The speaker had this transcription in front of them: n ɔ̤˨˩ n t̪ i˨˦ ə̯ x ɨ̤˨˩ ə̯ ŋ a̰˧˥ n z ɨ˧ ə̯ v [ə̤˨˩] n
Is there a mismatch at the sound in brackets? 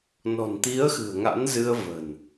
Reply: no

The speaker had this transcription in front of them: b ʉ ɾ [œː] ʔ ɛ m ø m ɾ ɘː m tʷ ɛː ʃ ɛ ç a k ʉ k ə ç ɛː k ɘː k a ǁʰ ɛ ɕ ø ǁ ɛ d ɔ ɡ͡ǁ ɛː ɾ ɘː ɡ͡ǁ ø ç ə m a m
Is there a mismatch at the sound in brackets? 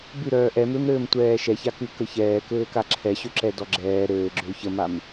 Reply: no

